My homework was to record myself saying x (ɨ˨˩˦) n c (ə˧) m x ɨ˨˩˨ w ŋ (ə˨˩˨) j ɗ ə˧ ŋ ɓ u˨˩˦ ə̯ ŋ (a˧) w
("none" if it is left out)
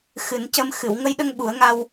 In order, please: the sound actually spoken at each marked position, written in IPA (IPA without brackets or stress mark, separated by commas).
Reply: ɨ˨˩˦, ə˧, ə˧, a˧